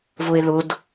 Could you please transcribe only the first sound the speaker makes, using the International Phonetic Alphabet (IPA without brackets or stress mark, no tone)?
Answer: v